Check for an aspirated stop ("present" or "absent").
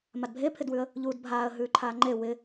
present